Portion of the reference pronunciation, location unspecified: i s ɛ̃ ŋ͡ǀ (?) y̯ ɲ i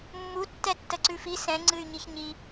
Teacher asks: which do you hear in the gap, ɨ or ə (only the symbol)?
ɨ